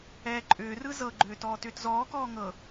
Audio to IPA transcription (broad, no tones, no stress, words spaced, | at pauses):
ɛːǃʼʏːrɯ zɤɡ͡ǃʏː tɔːtʏːtzɔːkɔː ŋɤ